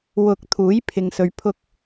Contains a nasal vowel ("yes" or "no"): no